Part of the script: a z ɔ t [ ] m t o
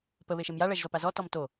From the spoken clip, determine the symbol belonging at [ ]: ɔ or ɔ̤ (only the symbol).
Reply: ɔ